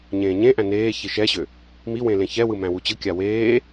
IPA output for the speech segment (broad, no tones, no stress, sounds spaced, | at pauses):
ɲ ẽː ɲ ẽ ʔ æ̃ n eː ç i ʃ ɛ ɕ ø | m i w ẽ l ẽ ç ɛ w ɯ m æ̃ w u t͡ɕ ɯ kʲ a w eː